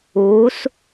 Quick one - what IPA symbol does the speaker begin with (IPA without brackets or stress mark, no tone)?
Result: uː